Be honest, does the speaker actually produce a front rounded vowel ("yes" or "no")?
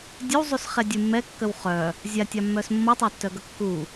yes